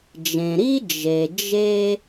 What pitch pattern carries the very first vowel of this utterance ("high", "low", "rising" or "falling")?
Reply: low